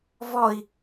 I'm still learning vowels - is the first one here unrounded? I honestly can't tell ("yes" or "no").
no